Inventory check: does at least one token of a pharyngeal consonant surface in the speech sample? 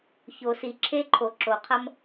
no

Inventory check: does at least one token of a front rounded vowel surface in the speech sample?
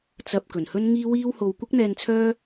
yes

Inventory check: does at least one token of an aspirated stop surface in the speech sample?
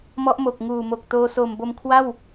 yes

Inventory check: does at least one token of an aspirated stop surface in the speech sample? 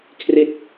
yes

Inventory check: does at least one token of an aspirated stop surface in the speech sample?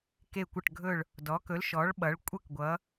no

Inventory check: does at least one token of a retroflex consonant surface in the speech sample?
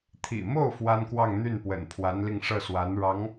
yes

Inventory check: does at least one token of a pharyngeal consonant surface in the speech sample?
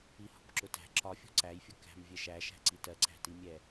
no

